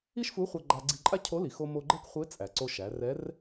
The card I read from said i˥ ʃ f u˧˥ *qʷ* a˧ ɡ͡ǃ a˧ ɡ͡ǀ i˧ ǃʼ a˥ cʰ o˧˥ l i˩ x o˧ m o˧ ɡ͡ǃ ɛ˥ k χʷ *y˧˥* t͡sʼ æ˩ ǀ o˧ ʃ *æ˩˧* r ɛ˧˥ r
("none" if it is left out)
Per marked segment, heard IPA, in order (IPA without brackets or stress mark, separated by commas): χʷ, e˧˥, æ˩˧